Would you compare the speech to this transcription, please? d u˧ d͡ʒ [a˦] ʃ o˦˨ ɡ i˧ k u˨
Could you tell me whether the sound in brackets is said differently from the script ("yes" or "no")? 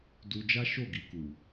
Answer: no